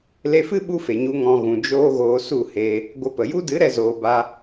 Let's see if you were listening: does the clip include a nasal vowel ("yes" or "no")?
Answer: yes